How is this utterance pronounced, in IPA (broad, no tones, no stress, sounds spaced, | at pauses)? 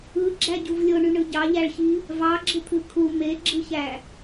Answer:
ɯ ɡ͡ǁ æ ɟ u v lʲ o ɳ y ɳ ɯ ɟ ɑ ʎ æ ɭ ç i | v ɑ ɡ͡ǁ ɯ t̪ʰ ɯ kʰ u m e ɡ͡ǁ ɯ ç æ